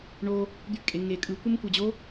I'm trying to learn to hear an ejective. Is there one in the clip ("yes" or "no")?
yes